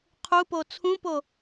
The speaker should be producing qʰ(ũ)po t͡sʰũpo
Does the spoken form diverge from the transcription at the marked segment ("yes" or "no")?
yes